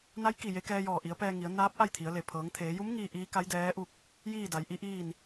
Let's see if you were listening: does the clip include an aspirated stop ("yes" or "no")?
yes